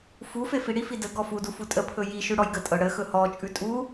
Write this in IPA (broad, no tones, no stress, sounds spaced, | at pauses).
f u f e f i ɽ i f i d ə ɡ ɔ f u d u f u tʼ ə pʰ ɵ j i ʃ ʉ ɽ ɔ j ɡ ə tʼ ɤ ɽ ə x ɵ h ɔ t͡ʃʼ ʉ tʼ u